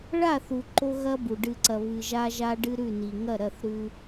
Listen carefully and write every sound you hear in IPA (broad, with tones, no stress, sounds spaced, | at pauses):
ɭ a˦˨ θ u˨ ǃ o˦ ɣ ɐ˦ b u˨ ɖ ɨ˨ ǀ ɐ˨ β ɨ˨ ʒ a˦ ʒ a˦ ɖ ɨ˦ ɾ ʉ˦˨ n i˨ ŋ ɐ˦˨ ɾ ɐ˦˨ θ ɾ ʉ˦